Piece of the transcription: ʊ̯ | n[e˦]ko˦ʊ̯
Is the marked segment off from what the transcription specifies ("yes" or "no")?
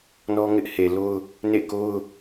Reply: yes